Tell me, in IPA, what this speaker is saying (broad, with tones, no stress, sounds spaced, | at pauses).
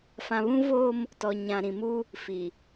f ã˨ β ũ˦ v oː˦ m | t ɔ˨ ɲ ã˨ ɾ ĩ˨ m u˦ | f i˨